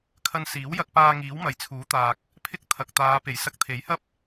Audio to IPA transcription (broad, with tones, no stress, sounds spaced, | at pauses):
kʰ ɐ˧ n s iː˨˥ w j ɐ˧ k̚ p aː˧ ŋ iː˨˥ w m ɐ˨ j t͡sʰ uː˨˥ t̪ aː˨ k̚ | pʰ ɪ˥ k̚ t̪ʰ ɐ˨ k̚ t̪ aː˨˧ p e˨˩ j s ɐ˧ k̚ t̪ʰ e˨˥ j h ɐ˥ p̚